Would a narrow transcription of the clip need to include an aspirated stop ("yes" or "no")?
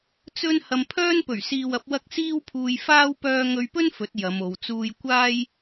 yes